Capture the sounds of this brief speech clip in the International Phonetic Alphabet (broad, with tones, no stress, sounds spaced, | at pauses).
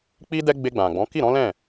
k͡p i˦ d ɛ˦ ɡ͡b e˧ ɡ͡b ã˨ ɡ͡b ɔ̃˨˦ k i˦˨ ɾ ɔ̃˨˦ l ɛ̃˦˨